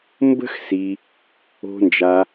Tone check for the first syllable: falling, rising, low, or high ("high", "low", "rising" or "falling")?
high